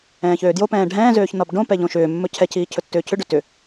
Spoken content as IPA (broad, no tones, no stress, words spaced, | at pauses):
ɛ̃ːçøːdjo pɛ̃ːɖʱɛ̃ː zøːçnɒbɖõ pɛʎõʃʏː mːɵcʰɛ cʰiːcʰɵtːʏːcʰʏ ɖøtʏ